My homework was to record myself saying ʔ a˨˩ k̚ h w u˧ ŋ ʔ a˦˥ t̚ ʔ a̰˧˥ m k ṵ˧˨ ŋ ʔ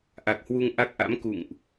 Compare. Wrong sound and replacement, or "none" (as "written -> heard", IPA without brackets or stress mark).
t̚ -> k̚